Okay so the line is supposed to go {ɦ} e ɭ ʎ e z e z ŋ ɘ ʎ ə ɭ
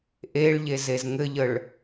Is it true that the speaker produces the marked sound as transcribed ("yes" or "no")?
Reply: no